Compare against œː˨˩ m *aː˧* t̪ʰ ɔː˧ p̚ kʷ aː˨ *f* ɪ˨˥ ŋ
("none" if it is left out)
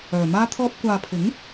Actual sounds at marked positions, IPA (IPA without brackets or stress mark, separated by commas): aː˧, pʰ